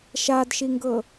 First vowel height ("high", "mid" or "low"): low